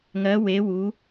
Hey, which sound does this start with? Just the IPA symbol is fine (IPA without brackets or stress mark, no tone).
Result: ŋ